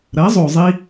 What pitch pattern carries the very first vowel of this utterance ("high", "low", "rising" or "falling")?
rising